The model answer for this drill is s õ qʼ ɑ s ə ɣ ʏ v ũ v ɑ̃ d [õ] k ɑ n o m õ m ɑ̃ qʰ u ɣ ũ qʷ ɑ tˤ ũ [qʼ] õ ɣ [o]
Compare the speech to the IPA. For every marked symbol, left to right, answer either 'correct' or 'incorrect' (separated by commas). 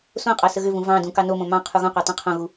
incorrect, incorrect, incorrect